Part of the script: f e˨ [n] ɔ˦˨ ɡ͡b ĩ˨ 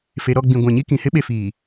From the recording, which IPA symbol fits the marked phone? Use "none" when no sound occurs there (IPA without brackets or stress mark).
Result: ɾ